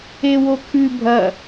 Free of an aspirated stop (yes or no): no